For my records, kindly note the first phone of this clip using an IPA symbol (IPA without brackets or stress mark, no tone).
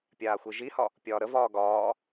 pʲ